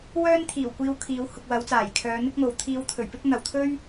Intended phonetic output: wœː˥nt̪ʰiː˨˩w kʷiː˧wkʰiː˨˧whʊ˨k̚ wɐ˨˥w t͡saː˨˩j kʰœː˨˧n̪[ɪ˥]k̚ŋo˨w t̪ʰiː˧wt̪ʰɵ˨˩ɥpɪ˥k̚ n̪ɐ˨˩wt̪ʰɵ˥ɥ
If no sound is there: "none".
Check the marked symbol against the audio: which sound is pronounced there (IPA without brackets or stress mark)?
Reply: ɪ˥